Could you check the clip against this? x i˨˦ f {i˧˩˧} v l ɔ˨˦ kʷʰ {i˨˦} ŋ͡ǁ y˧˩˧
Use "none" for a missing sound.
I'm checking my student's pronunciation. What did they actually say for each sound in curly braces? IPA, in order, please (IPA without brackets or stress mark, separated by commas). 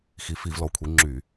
i˧˩˧, i˨˦